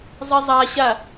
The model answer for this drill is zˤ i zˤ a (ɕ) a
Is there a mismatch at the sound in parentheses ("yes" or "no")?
no